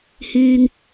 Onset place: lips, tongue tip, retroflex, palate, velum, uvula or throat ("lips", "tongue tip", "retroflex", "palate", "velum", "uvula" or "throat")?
throat